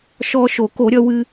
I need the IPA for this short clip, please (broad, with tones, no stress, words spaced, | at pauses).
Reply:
ʃɔː˧ʃo˨˩˦ko˨˩˦ ɾʲʌ˧wɨ˧